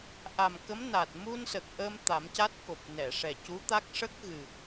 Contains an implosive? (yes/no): no